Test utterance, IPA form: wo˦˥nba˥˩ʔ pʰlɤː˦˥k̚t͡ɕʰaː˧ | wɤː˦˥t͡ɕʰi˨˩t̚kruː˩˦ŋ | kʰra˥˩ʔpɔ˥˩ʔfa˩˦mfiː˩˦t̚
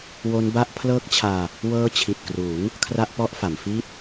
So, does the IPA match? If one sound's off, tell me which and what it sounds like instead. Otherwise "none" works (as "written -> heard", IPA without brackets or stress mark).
iː˩˦ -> iː˥˩